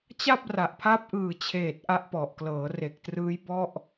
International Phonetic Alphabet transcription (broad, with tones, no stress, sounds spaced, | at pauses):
t͡ɕ a˥˩ p̚ r a˨˩ ʔ pʰ a˦˥ p̚ ʔ ɯː˨˩ t͡ɕʰ eː˨˩ t̚ ʔ a˦˥ ʔ p ɔ˨˩ ʔ k l ɤː˩˦ r e˨˩ k̚ t r ɯː˦˥ j b ɔ˥˩ ʔ